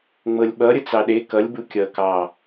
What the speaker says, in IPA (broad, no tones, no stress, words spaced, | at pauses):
ŋ͡mɤlʲɓʌ ɾʲət͡sɑɗe kʌlʲ bukʲʌ kɑ